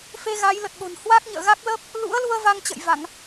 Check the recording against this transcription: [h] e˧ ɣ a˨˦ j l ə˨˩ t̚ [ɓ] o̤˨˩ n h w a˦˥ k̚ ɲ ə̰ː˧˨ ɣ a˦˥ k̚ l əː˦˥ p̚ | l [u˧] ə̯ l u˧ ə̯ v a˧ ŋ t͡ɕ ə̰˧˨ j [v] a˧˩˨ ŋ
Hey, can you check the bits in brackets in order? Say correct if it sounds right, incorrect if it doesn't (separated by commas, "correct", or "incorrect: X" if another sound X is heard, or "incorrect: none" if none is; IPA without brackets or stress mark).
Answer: incorrect: f, correct, incorrect: ṵ˧˥, correct